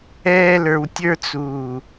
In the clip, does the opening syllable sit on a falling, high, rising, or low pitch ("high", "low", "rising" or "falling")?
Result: high